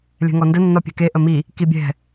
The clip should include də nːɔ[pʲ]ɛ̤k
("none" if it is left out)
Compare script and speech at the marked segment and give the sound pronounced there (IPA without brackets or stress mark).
pʲ